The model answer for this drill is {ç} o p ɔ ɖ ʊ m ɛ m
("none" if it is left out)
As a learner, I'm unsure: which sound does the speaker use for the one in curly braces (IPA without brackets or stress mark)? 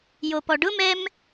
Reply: j